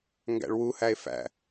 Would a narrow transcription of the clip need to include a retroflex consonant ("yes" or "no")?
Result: yes